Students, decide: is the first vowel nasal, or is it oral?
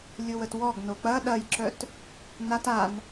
oral